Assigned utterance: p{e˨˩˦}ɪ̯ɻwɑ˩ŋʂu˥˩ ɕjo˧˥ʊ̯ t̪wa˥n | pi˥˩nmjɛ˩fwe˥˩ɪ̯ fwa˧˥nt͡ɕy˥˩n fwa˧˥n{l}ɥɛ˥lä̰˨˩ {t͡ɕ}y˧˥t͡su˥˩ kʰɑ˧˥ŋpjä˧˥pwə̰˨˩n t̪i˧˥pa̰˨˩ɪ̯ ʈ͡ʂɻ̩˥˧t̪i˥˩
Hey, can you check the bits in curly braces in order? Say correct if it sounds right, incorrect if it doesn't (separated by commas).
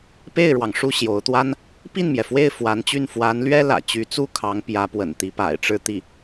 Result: incorrect, correct, correct